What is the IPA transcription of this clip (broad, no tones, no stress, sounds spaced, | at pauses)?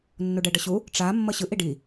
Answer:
nː u ɖ ɛ ɖ ʌ ɕ u | ʈ͡ʂ a mː ʌ ɕ ɯ ʔ i ɖ i